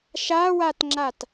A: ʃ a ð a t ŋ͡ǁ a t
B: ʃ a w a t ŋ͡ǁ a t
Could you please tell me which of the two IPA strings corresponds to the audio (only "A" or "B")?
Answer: B